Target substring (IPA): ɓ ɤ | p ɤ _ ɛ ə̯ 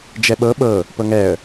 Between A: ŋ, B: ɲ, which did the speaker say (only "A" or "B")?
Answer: A